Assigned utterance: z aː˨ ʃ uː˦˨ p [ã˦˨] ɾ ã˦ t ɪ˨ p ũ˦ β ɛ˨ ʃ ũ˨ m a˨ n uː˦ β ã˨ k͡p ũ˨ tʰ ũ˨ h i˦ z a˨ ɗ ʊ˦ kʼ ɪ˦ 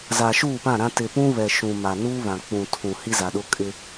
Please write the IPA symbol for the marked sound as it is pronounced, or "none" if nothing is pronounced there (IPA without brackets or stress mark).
ã˦˨